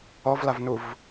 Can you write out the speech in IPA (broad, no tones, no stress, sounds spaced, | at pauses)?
ɔ v l a v n u v